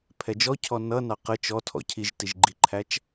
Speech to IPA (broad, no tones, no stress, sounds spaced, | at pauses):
pʰ ɛ d͡ʒ ɔ cʰ ɔ n ʌ n ɑ q ə t͡ʃ ɔ tʰ ɔ̰ cʰ i ʒ t i ʒ ɡ͡ǃ i ǃʰ æ t͡ʃ